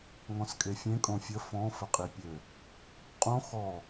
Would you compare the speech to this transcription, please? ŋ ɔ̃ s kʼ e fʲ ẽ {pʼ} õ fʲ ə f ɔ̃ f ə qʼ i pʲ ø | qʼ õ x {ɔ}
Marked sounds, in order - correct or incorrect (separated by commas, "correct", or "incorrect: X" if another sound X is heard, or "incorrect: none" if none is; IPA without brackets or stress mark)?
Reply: incorrect: kʼ, correct